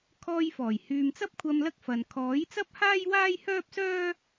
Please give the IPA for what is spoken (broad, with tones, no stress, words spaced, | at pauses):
kʰɔː˧jfɔː˨˩j hyː˨mt͡sɐ˥p̚kʷʰɐ˧m lɐ˥k̚fɐ˨n kʰɔː˨˥jt͡sɐ˥p̚haː˥j waː˥jhœː˥p̚sœː˥